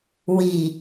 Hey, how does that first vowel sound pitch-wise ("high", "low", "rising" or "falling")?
low